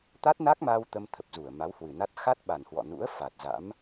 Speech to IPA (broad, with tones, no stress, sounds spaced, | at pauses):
t̪ a˦˥ t̚ n a˦˥ k̚ m a˧ w t̪ ə˧ m t̪ʰ ə˨˩ p̚ z u˧˩ ə̯ m a˨˦ w h w ɨ˨˩ n a˦˥ t̚ x a˦˥ t̚ ɓ a˨˩ n h w ɔ̰˧˨ n ṵ˧˥ ə̯ f a˨˩ t̚ z a̰˧˥ m